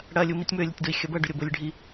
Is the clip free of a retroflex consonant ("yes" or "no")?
no